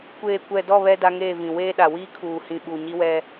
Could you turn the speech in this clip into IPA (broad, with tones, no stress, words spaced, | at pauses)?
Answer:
kʷeː˨kʷɛ˨dɔ˦˨ βɛ˦ da˦ŋeː˦˨vĩ˨ weː˦ɗa˨ wiː˦kʰuː˨ hĩ˨ɓu˨ɲi˦wɛ˦